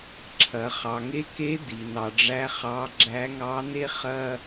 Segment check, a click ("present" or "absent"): present